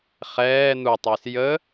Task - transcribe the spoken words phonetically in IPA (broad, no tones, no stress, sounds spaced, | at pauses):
χ ɛː n̪ u tˤ e s j ə